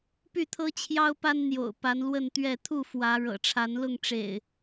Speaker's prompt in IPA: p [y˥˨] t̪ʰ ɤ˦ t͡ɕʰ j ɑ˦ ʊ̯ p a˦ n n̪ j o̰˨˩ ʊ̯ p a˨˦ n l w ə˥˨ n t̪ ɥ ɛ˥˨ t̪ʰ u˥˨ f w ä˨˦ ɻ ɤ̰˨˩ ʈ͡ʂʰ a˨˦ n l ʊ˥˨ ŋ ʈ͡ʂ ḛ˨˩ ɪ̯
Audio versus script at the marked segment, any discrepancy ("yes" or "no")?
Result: no